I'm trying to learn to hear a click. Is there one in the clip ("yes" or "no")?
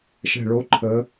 yes